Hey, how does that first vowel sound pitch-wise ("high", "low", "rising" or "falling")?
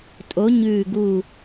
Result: rising